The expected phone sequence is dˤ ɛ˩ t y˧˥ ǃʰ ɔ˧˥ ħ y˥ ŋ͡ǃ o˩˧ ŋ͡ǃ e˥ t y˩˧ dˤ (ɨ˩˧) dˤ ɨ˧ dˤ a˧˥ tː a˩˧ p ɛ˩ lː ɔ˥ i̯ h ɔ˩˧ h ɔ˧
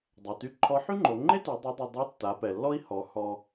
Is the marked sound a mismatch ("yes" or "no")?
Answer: yes